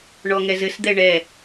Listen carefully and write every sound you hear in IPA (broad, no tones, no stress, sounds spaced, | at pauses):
ɳ ɔ ŋ ɛ z ɘ s d̪ ɛ ɳ ɛ